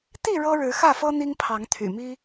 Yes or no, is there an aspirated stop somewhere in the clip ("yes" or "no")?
yes